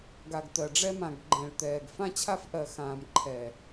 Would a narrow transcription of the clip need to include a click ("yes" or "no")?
yes